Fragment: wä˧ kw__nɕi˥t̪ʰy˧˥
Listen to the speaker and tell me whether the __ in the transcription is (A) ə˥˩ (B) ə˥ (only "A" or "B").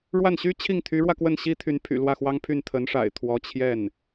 A